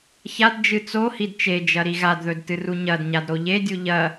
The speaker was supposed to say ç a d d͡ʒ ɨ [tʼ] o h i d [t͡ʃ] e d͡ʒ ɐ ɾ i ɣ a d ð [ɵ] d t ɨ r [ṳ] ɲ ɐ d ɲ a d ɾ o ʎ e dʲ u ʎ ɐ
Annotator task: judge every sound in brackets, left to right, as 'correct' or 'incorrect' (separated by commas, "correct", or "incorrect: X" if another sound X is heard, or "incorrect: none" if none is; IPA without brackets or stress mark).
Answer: incorrect: t͡s, correct, correct, incorrect: u